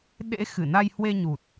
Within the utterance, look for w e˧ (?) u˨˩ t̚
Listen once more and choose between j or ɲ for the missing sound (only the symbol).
ɲ